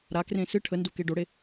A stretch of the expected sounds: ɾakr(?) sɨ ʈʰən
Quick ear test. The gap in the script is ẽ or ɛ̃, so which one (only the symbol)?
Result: ẽ